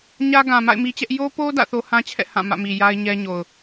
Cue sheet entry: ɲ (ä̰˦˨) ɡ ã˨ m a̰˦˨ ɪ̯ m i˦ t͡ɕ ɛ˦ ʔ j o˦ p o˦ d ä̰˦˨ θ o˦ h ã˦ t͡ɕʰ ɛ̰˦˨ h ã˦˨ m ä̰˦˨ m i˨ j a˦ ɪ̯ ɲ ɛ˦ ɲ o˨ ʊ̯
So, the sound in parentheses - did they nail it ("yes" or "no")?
no